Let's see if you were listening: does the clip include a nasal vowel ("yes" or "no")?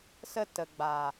no